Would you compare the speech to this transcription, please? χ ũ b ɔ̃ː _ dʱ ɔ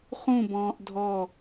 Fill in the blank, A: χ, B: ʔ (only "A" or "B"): B